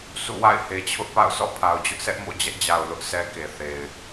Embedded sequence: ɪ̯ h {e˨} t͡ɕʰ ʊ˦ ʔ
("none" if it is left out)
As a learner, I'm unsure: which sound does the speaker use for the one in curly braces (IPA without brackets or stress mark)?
e˨